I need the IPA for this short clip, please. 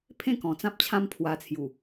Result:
pʰ ẽ˥˧ k ɔ̃˨˩ t͡s ã˦ p̚ t͡ɕʰ ã˦ m pʰ w a˧ t͡sʰ j u˨˩

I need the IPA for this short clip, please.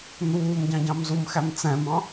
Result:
n̪ uː m ɟ ɑ̃ ɟ ɑ̃ m z u m x æ m t͡s ɛ̃ m ɑ̃

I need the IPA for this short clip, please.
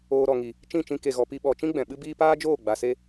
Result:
oː˧ ɾ ɔ˨ ŋ i˨ | t͡ʃ ĩ˦˨ t͡ʃ ĩ˧ k e˨ ɣ ɔ˨ p i˧ ɓ ɔ˨ t͡ʃ ĩ˦ ɡ͡b ɛ̃˨ ɓ ɨ˦ b iː˦ p aː˦ d͡ʒ oː˦˨ ɡ͡b a˨ s e˧

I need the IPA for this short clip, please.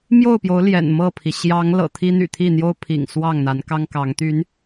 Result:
m j o˥˨ ʊ̯ p j o˨˦ ʊ̯ l j ɛ̰˨˩ n m ɤ˥˨ pʰ i˩ ɕ j ɑ˨˦ ŋ l ɤ̰˨˩ t̪ʰ i˦ n̪ y̰˨˩ t̪ʰ i˥˨ n̪ j o˦ ʊ̯ pʰ ḭ˨˩ ŋ s w ɑ˥˨ ŋ n̪ a˨˦ n k ɑ˦ ŋ k ɑ˨˦ ŋ t̪ y˨˦ n

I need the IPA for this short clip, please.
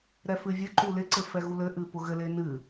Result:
ɾ ɛ f ɨ vʲ ɘ ǃ u l ɪ ǀ ɘ f ɛ ɣ u l ɘ ʔ ɨ p ʊ ɣ ɘ l e n ɨ

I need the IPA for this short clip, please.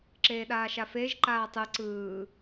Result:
ǁ eː ɗ aː ʃ a f eː ʒ ǃ aː tˤ ɯ ǀ ɯː

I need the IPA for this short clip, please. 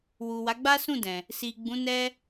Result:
w u˨ w a˨˦ ɡ͡b a˦ s ũ˦˨ d ɛ̃˨ | s i˨ ɡ͡b ũ˨˦ n ɛ˦

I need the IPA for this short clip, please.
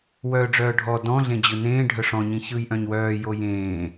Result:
w œː ɖ͡ʐ œː ɖʱ ɔ d ɔ̃ ɮ ẽ d͡ʑ ɯ n ẽː ɖʱ œ ʂ ɔ̃ ɲ ĩ ç ɯː j ʔ œ̃ ɲ w œː j o j ẽː

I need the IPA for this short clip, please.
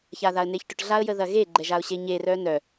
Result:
ç a ð a ə̯ n e ç ʈ ʏ ʈ ɮ a ə̯ j ə ð ɐ ɣ e ɡ͡ǃ ɛ ʒ a ʊ̯ ɕ e ɲ e r œ n œ

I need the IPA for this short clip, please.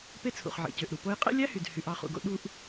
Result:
p e˦ t͡sʰ ṵ˩ χ ʕ ḛ˩ c ø˩ ʔ ɾ u˩ p o˦ j qʼ ḛ˥ lʲ æ˥ h y˩ d h y˨ ʔ ɑ˦ χ ṵ˨ ɡ o̰˥ ɗ u˦ ʔ

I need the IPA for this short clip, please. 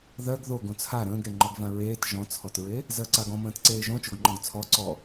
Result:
ð ɜ ɡ ð o ɡ õ t͡sʰ a ɾ ə̃ː ɡ ɾ e ŋ͡ǃ ɔ ɡ v ã ɹ eː t ʒ ɔ̃ t͡sʰ ɔ t ɹ e | z ɜ ǀ a ɡ ɔ̃ m ə̃ː t ǀ eː ʒ õ t͡ʃ o ɡ ŋ͡ǃ ɔ̃ ɡ t͡sʰ ɔ ǀ ɔ

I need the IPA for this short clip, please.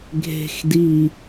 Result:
ɡʱ e̤ x d i

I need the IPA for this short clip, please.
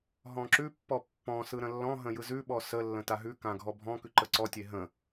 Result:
ɦ ɔ̃ ǁ ʉ pː ɔ pː ɔ̃ s ɯ ɾ ə̃ lː ɔ̃ ɦ ə̃ j ɯ z ʉ ɓ ɔ s ə lː ə̃ t a ɦ ʉ k ã ɡʱ ɔ bʱ ɔ̃ k ʉ ǃ ə ǀ ɔ tʲ e ɦ ə̃

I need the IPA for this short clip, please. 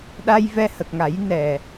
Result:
ɗ a˧ j v ɛ˧ h ə˨˩ k̚ ŋ a˨˩˦ j n ɛ˨˩

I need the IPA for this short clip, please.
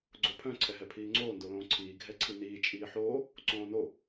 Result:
ɡ͡ǀ o pʰ œ̃ ǀʰ ɛ ɦ ɛ pʰ iː ŋ͡ǀ oː n d o l õː ǀʰ iː ɡʱ ɛ ǀʰ i n iː t͡ʃʼ iː ħ oː | ǀ õː n o

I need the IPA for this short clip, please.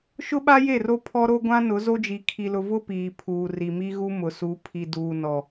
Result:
ʃ ʊ˦ ɓ a˦ j e˦˨ r o˦ pʰ ɔ˦ ɾ o˦ ɡʷ ã˦ n ʊ˨˦ z o˦ d͡ʒ i˨ kʰ i˨ l ʊ˨ v ʊ˦ p iː˨ pʰ uː˨ r i˨ m i˦ ɣ u˦ m ʊ˨ s u˨˦ pʰ i˨ d uː˨ n ɔ˨

